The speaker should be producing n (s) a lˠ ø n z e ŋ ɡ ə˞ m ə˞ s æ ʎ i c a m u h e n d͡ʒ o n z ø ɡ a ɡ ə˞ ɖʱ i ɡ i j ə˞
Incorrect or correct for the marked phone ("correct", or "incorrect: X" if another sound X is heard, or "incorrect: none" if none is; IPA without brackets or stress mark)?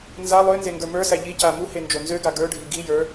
incorrect: z